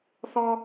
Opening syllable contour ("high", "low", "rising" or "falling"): high